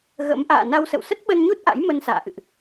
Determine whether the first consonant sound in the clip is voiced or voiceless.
voiced